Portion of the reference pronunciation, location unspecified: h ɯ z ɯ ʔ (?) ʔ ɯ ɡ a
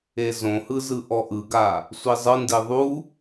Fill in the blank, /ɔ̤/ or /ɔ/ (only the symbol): ɔ